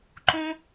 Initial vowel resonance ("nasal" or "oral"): nasal